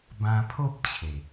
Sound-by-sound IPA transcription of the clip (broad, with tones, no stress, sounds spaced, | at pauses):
b ã˧ pʰ o˦ p̚ t͡ɕʰ e˨˩